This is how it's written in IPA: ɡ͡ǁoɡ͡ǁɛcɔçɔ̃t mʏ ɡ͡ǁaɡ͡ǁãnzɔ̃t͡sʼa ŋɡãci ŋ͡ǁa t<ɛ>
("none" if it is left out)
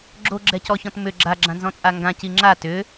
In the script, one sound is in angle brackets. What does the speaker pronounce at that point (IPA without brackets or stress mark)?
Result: ʏ